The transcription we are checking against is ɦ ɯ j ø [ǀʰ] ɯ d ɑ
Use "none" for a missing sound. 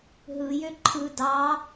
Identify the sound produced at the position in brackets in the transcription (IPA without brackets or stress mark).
ǃʰ